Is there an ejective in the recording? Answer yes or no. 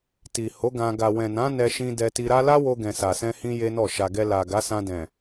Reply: no